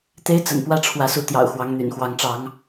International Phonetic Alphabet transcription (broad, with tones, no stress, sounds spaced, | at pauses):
t̪ e˦ ɪ̯ t͡s ə̰˨˩ n p w ä˥˨ ʈ͡ʂʰ w ä˨˦ s u˨˦ t̪ j ɑ̰˨˩ ʊ̯ x w ɑ˨˦ ŋ n̪ y̰˨˩ n x w ɑ˨˦ ŋ ʈ͡ʂ ɑ˨˦ ŋ